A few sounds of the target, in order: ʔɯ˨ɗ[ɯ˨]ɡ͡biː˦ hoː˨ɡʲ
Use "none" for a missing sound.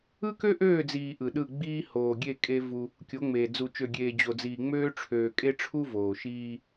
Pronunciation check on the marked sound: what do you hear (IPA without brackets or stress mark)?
ɯ˦˨